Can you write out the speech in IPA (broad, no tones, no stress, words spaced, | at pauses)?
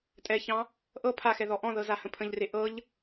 tʼɛçɑ̃ | ʔɤ pʰaxɛ ðɔʔɔ̃ðɤ zahə̃pʰə̃ʎre ʔɤʎ